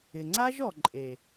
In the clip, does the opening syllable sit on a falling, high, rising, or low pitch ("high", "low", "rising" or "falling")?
low